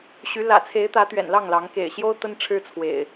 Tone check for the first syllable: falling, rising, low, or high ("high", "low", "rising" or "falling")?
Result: rising